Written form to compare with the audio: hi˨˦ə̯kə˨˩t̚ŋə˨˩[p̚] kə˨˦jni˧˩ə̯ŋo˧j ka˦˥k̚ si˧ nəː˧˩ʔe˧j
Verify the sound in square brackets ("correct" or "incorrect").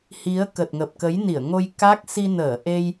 correct